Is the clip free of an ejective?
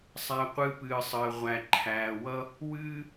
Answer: yes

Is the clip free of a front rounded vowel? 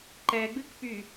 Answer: no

